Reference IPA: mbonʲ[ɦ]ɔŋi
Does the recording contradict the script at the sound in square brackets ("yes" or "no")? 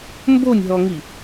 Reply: no